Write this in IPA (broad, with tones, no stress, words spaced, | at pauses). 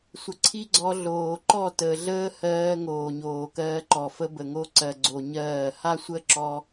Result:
sʷə˨ǀʰi˦ɡ͡ǀɔ˧ ɮoː˨ǃɔ˦˨təː˨ɮəː˦ hɜː˧ ŋoː˨ɲoː˨ kɜː˧ǃɔ˨fə˦ bə˨ ŋo˧ǀɜ˨ɡ͡ǀo˨ ɲɜː˦˨ ha˦sʷə˦ǁɔ˧